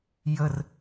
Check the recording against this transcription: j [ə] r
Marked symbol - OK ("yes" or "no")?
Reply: yes